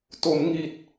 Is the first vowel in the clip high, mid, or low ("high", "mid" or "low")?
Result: mid